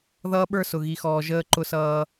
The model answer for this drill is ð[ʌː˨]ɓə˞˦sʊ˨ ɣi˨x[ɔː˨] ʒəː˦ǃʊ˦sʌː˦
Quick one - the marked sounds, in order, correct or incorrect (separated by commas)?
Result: incorrect, correct